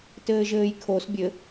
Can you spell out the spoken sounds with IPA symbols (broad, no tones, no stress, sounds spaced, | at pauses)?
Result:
t ɘː ʒ ɘː j kʰ o s bʲ ɘ